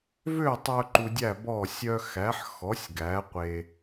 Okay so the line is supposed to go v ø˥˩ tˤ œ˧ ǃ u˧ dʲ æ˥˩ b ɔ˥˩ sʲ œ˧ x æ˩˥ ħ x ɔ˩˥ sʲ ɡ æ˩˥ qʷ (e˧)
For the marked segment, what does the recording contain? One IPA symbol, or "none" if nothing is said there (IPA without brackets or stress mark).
e˧